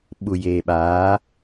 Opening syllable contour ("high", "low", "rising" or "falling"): low